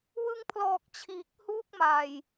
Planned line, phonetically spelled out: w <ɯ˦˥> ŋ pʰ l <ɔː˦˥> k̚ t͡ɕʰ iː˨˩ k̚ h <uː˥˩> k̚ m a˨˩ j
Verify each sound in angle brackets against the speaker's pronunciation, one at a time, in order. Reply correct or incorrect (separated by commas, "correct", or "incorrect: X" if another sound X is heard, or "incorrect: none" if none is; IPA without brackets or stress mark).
incorrect: ɯ˧, incorrect: ɔː˨˩, correct